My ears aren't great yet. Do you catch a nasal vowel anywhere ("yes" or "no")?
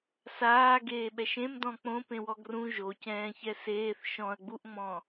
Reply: yes